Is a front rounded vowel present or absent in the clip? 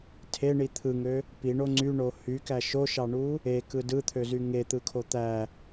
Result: present